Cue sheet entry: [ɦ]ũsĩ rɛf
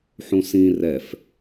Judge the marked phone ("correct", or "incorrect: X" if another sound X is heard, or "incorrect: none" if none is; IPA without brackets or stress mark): incorrect: ħ